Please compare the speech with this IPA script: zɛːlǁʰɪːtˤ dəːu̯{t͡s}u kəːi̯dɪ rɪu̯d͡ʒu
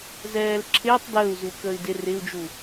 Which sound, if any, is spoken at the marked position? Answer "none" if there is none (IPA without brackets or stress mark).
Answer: z